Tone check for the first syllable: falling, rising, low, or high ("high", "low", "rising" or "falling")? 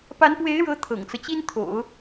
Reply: rising